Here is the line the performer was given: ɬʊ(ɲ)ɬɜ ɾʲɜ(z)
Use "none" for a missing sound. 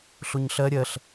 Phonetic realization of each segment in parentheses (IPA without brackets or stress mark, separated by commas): ɲ, ɬ